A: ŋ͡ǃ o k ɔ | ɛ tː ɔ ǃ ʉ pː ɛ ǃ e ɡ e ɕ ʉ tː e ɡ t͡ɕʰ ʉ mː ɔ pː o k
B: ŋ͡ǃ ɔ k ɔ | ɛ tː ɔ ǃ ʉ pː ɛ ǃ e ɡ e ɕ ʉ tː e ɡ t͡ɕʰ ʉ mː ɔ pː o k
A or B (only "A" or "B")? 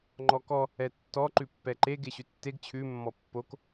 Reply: B